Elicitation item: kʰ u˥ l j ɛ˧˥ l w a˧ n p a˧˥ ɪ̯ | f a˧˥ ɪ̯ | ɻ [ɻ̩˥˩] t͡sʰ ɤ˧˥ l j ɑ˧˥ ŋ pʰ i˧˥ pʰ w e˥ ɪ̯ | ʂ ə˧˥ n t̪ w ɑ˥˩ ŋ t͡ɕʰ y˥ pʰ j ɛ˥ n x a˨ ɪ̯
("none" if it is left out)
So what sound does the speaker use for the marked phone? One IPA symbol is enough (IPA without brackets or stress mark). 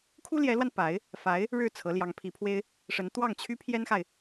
ɻ̩˥˩